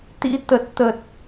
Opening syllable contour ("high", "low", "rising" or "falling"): rising